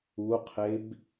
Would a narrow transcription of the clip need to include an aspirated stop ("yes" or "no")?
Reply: yes